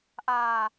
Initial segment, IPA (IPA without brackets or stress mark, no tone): ʔ